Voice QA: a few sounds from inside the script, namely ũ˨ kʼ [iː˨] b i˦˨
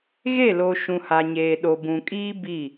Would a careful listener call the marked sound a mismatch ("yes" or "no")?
yes